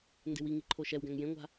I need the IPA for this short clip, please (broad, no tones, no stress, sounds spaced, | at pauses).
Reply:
n d e̤ w i ŋ i ǃʰ o ʃ ɛ w ɡ æ̃ ŋ j ẽ ŋʷ a̤